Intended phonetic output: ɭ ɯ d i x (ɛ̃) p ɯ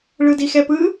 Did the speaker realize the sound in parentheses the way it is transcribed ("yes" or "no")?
no